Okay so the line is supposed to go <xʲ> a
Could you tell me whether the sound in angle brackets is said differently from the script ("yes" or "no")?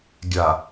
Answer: yes